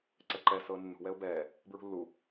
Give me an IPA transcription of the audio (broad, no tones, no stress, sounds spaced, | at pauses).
ǀ ɛ ǃ ɛ s ɤː nː ṳ w ɛ ʊ̯ b ɛː | b ɹ ṳ lː u